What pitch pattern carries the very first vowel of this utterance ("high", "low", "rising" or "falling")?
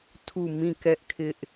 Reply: falling